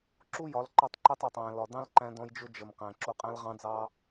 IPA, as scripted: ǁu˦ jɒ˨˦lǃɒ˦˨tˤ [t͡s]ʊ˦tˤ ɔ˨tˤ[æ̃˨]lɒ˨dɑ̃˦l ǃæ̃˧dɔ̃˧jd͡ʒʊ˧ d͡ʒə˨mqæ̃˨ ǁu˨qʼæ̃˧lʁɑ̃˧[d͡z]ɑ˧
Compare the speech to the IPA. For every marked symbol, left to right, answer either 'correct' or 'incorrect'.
incorrect, correct, correct

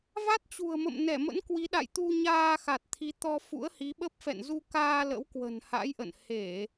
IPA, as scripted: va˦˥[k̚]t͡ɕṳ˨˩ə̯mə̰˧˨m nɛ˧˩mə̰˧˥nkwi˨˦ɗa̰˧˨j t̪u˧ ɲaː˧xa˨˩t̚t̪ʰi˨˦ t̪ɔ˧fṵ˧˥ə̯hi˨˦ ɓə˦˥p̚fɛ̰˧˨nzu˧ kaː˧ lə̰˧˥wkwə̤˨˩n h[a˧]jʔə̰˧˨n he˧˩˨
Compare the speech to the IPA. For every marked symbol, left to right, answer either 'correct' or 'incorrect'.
incorrect, incorrect

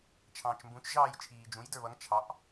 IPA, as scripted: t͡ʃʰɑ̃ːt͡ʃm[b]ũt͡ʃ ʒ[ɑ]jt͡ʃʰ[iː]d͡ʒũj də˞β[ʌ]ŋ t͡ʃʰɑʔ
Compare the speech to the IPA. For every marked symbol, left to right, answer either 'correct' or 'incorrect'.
correct, incorrect, correct, correct

